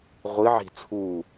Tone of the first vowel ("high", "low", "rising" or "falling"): rising